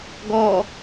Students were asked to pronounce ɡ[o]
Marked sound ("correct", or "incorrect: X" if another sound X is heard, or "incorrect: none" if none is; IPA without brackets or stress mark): incorrect: ɔ